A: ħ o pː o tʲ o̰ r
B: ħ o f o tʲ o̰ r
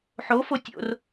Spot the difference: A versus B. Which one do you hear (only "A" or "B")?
B